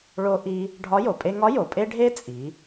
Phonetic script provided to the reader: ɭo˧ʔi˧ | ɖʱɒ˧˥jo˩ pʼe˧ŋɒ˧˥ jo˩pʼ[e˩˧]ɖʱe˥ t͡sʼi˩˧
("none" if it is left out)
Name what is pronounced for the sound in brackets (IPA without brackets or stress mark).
e˥